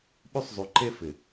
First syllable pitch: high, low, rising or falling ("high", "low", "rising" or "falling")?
high